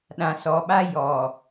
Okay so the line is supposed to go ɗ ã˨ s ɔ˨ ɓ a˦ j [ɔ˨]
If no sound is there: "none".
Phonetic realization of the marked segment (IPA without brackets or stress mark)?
ɔ˨